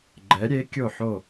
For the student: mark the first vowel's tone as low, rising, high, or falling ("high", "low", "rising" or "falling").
rising